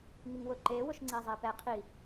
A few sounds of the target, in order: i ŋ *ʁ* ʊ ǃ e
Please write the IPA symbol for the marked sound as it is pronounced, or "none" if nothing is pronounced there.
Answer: w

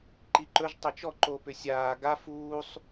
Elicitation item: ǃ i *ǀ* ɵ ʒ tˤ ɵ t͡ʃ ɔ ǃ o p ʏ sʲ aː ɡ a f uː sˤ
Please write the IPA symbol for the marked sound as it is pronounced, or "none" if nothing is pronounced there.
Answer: ǃ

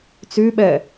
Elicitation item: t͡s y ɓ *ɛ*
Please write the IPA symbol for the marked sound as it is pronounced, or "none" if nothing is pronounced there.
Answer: ɛ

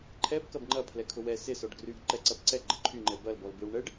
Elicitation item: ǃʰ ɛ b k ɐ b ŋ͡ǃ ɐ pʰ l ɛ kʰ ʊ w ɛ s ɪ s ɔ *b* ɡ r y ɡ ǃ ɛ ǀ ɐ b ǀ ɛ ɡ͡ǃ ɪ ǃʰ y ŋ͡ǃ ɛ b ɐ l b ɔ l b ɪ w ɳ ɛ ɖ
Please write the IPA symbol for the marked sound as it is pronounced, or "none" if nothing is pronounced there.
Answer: ɖ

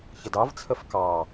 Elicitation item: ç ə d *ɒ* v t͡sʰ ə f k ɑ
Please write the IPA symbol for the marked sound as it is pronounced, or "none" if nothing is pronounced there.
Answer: ɑ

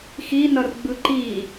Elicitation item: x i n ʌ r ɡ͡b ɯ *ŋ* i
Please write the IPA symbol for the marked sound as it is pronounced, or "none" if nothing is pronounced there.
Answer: ǃ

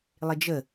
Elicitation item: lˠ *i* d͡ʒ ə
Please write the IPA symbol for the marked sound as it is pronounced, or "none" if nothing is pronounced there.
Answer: ɪ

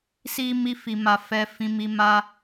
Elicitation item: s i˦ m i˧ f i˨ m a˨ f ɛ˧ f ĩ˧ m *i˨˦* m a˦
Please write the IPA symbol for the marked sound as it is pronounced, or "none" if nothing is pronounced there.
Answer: i˧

